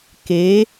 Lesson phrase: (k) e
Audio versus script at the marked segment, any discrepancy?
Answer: no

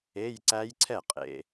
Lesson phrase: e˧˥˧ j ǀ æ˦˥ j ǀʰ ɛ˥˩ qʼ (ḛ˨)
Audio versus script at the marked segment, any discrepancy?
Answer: no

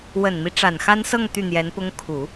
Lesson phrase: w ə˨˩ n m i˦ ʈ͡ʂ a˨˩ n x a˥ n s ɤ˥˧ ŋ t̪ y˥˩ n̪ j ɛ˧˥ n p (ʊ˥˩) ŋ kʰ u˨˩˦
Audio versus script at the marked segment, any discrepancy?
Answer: yes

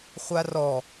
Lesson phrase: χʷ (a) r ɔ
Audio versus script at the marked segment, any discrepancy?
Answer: no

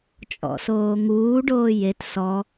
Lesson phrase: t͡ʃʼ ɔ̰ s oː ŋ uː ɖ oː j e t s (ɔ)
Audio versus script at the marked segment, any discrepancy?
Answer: no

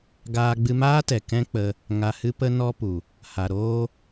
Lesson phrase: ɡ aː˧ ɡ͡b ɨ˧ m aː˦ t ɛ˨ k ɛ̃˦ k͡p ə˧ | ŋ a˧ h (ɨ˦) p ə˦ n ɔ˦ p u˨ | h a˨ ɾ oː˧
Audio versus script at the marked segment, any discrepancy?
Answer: no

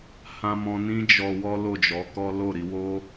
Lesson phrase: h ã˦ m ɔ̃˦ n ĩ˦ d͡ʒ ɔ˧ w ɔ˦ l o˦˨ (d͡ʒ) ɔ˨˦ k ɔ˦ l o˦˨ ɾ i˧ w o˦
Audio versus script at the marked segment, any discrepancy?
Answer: no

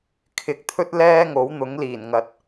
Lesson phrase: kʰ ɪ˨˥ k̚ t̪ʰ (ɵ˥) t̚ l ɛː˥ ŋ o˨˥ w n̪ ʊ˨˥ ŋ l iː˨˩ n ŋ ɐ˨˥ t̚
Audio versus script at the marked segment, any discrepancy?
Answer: no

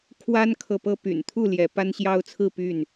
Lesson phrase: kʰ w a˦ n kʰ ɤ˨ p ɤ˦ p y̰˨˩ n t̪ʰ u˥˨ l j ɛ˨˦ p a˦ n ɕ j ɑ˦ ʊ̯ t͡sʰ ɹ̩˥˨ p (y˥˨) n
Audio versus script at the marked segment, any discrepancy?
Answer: no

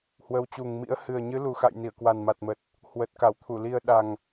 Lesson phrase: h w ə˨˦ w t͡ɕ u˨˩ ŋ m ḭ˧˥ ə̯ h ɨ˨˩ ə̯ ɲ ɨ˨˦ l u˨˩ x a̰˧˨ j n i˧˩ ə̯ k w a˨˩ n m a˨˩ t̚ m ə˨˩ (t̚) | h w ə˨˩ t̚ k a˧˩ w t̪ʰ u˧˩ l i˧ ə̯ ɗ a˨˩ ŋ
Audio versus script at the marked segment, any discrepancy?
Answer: no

